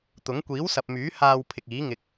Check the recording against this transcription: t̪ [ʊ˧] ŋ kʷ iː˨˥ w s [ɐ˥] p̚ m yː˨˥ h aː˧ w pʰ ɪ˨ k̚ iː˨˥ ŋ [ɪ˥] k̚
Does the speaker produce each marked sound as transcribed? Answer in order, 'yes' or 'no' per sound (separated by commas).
no, no, no